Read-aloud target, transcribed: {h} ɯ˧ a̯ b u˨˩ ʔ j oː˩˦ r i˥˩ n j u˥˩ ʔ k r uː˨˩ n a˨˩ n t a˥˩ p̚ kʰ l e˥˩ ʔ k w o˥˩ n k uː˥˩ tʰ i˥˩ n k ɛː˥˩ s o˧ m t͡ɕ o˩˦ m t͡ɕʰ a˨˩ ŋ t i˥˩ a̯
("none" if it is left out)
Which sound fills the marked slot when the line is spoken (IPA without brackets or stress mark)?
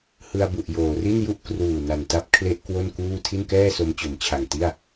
h